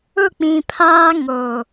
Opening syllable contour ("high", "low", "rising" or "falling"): falling